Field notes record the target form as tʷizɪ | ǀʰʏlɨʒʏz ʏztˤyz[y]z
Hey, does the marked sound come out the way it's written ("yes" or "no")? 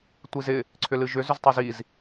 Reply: no